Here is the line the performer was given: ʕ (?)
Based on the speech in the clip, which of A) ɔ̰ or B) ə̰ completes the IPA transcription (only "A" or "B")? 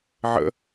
B